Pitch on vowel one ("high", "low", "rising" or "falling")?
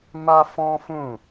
high